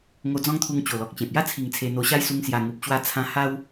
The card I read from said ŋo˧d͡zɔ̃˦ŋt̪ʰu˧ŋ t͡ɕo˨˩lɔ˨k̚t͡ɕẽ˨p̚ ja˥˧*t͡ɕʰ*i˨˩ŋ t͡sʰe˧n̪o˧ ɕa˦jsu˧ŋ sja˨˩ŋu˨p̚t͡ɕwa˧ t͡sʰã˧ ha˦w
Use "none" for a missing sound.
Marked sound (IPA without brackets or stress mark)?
t͡sʰ